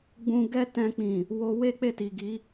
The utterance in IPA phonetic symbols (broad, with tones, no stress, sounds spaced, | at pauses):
ɡ͡b ũ˧ ɡ ɛ˦ t ɛ̃˧ k͡p ĩ˨ | w o˧ w e˦ k͡p e˦˨ t i˨ ɡ i˨˦